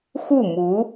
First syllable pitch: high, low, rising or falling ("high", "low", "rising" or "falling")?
falling